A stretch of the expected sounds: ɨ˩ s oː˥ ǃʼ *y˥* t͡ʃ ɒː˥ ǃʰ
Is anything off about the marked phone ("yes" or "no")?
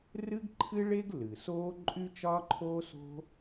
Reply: no